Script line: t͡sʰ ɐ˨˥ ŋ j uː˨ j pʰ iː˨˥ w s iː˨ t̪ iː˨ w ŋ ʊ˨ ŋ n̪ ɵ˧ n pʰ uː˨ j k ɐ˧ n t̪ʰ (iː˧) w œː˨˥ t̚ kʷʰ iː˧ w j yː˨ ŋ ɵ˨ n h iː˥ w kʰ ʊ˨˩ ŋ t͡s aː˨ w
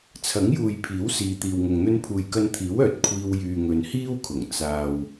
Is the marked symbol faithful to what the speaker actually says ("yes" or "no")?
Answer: no